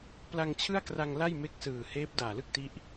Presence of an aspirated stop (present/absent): present